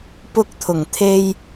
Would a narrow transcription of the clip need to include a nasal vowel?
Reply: no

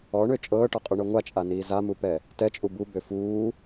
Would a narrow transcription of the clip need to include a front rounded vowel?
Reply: yes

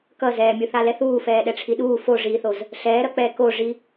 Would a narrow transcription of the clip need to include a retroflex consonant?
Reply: yes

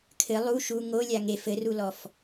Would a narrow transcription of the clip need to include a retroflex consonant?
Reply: no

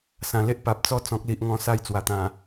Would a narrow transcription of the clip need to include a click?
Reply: no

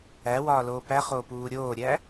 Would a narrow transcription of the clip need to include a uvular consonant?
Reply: yes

